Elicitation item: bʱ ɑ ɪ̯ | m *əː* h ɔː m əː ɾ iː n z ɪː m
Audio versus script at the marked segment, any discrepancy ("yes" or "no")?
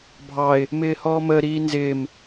yes